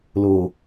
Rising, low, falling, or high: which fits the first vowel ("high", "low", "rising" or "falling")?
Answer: low